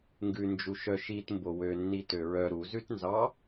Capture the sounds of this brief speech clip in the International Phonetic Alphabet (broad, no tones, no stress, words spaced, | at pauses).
ŋɡʉnd͡ʒuʃœ ʃitmbo wønːi tøɹœ ɾuzʉtnzɑ